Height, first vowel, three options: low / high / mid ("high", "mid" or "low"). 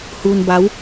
high